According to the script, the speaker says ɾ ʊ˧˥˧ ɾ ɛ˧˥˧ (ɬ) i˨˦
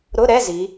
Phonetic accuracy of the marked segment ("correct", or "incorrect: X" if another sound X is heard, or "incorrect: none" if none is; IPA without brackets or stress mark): incorrect: z